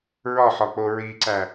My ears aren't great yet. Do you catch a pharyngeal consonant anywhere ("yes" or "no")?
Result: yes